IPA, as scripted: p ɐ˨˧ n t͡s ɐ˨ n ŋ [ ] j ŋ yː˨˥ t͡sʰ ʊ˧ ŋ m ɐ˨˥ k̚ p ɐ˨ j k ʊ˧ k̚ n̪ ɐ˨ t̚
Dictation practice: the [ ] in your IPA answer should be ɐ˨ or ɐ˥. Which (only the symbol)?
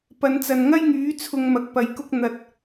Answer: ɐ˥